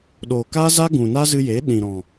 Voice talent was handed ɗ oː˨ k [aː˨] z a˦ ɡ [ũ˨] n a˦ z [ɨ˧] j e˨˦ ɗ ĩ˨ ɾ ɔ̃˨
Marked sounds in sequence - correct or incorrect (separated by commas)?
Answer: incorrect, correct, correct